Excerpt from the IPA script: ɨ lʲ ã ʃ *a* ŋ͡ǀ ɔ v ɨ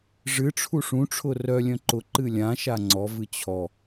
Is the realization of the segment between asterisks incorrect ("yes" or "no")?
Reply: no